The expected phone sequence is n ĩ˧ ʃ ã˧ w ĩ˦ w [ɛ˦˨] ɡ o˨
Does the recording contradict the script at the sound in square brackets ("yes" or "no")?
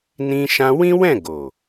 yes